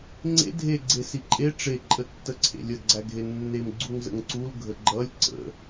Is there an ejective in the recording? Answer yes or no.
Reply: yes